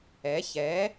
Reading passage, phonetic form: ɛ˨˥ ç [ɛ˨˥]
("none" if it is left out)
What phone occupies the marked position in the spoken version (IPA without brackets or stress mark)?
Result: ɛ˨˥